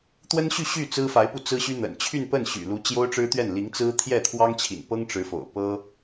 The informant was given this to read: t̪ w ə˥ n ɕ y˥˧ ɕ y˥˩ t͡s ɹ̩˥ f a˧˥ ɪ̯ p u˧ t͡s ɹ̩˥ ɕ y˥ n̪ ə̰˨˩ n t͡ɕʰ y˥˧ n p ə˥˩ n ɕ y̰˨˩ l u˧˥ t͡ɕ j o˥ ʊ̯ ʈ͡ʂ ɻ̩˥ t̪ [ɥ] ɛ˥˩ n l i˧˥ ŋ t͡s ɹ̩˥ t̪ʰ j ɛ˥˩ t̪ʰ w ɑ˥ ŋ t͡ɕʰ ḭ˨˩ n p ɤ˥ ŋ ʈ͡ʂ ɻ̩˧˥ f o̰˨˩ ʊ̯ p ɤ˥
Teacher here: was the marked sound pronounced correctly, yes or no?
yes